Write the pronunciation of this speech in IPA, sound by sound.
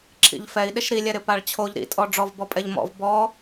ǁʰ ḭ ʎ f ɛ i̯ ɗ ɪ ʃ ɾ i lʲ ɛ ɾ ɪ p a ɭ t͡ɕʰ o ʎ ɾ ḭ tʼ ɔ ɖ͡ʐ ɔ v b ɔ pʼ ɛ ʎ m ɔ̰ v b ɔ

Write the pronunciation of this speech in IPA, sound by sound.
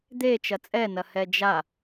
d̪ e t͡ʃ ɐ t͡sʼ ɛ n ɐ h ɛ d͡ʒ a

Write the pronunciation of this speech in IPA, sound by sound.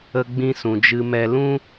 ə˧ ɡ͡b ĩ˧ s ũ˨ d͡ʒ ɨ˧ m ɛ˧ l ũ˦

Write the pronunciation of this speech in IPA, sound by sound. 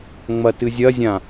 ŋ͡m ɐ t ɨ zʲ ɐ zʲ ã

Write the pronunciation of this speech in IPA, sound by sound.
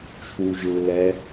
t͡ʃʰ u ʒ lː ɛ

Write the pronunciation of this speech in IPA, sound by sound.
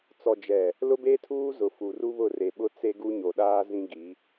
t͡s ɔ˨ d͡ʒ ɛ˨ | l ʊ˦ b e˦ tʰ uː˦ z ʊ˨ f u˨ r u˦ β ʊ˦˨ r e˨ ɓ ʊ˦ t͡s e˦ ɡ u˦ ɲ o˨ ɗ aː˦ z ĩ˦ ɡ i˨˦

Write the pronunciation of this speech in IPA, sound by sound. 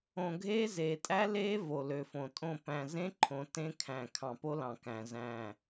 õ˨ ɡʱ eː˦ z eː˨ tʼ æ˦ l eː˦ v o˨ l ø˨ f õ˨ tʼ õ˦˨ p æ̃˨ z ẽ˦ ǃʰ õ˨ t ẽ˦ kʰ æ̃˨ kʰ ɑ̃˨ p o˦ l ɑ̃˨ k æ̃˨ z æ̃˦˨

